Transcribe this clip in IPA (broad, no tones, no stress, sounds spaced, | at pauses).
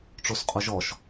ʈ͡ʂ o s qʼ o ʒ ɔ ʃ